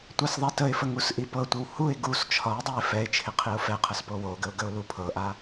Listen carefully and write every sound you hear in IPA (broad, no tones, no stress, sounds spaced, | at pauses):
tʷ a s ðˤ ɛ t ə ɪ̯ f ə ŋ u s ʔ i p ɤ tʷ ɪ w h u ɪ̯ ɡ u s t͡ʃʰ ɒ ɪ̯ dˤ o ɪ̯ f ɛ ɪ̯ t͡ʃʰ ɪ qʰ i ʊ̯ f ɛ qʰ ə s p o w o ɡ ə ʊ̯ ɡ ə ʊ̯ l u pʰ ɤ ʔ a